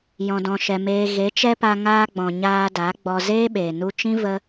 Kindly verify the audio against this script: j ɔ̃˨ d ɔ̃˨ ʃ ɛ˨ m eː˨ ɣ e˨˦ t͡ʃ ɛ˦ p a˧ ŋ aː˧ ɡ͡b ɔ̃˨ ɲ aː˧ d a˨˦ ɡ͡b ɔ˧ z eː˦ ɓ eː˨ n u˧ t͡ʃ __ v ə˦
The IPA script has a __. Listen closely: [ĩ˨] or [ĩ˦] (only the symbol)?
ĩ˦